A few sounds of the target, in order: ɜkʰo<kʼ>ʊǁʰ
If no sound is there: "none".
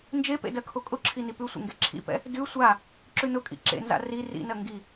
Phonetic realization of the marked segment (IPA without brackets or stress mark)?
kʼ